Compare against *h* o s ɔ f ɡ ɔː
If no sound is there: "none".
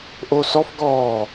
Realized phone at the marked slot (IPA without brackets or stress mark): ʔ